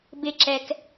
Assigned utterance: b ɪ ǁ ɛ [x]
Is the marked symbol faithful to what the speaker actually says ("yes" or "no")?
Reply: no